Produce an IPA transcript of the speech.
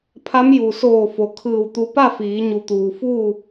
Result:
pʰ a˧˥ m j u˩ s oː˧˩ f o˩ kʰ ɯː˧˩ w t̪ u˧ p a˥˨ f iː˩˧ ɲ u˩ t̪ uː˩ f uː˥˨

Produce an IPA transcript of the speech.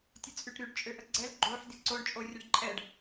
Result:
tʲ ə t͡sʼ y ʈ ɾ y ɖ t͡ʃʼ ø ʔ ə ɡ͡ǀ ɛ l ɡ͡ǃ o ħ d i ǀ o ɳ t͡ʃʼ o rʲ ə ɖ ǃʼ ɛ ɖ

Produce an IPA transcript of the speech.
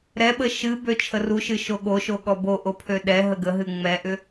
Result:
ɾ ɛ ɓ ə ʃ ɨ b ø t͡ʃʰ ə r u ʃ ɨ ʃ o ɠ o ʃ o ɠ ɔ b o ʔ o pʰ ø ɗ ɛ ɦ ə ɡ ə ɦ ɨ ŋ͡m ɛ ʔ ʏ

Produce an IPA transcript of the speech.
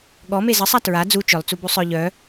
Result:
ɠ ɔ m e z ə sˤ a t ɹ a d͡z u t͡ʃ œ lˠ t͡s u b u sˤ œ ʎ œ

